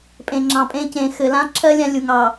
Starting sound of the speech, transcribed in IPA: pʼ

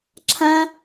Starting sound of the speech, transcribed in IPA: ǁʰ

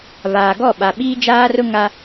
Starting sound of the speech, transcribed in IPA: β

